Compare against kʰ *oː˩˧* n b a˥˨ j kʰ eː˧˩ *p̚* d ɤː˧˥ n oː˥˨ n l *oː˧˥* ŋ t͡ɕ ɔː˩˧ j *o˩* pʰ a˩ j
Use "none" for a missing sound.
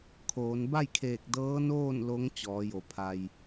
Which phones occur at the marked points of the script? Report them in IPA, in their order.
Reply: oː˩˧, k̚, o˧˥, o˩

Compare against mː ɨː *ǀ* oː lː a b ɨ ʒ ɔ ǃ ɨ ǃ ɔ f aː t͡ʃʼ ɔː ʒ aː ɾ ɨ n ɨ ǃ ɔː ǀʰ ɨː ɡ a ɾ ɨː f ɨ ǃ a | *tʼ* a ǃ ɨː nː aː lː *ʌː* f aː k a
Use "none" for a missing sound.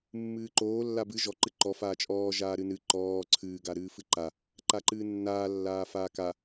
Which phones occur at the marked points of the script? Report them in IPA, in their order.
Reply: ǃ, ǃ, aː

